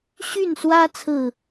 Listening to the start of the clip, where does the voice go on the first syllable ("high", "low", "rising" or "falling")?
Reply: falling